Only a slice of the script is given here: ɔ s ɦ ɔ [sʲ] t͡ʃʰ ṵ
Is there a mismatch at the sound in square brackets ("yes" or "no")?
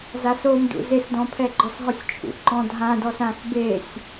no